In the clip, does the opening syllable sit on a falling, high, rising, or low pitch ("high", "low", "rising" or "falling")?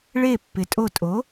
falling